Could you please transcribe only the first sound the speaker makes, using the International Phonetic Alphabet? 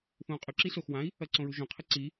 θ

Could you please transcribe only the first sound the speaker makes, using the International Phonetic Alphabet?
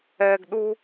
ɛː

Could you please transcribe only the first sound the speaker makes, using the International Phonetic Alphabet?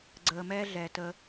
ɡ͡ǀ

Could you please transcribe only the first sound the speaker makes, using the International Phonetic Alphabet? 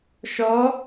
ʃ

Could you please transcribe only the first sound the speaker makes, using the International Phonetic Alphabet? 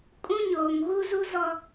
kʼ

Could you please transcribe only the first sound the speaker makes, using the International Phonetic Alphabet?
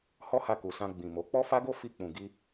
h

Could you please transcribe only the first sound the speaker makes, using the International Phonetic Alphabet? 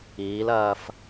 iː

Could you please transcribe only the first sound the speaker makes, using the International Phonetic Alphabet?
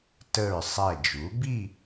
t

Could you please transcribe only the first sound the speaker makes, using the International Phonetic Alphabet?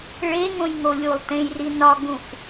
ɭ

